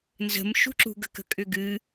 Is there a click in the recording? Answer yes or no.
yes